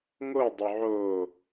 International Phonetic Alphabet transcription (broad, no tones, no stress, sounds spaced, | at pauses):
ŋ o dˤ œ ʕ o